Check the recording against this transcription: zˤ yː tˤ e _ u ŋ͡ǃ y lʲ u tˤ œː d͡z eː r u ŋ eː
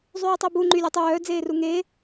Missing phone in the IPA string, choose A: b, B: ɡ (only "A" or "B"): A